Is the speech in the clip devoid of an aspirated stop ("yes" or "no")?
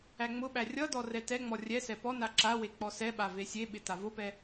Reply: yes